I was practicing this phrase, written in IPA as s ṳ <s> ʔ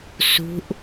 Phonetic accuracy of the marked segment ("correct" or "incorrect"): incorrect